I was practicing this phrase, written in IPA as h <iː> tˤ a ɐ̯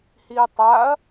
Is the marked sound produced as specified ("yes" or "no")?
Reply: yes